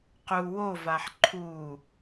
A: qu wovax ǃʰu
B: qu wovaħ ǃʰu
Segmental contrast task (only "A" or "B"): B